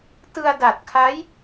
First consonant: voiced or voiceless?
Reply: voiceless